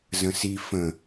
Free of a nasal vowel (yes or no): no